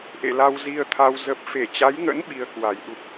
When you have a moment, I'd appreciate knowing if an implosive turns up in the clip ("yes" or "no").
yes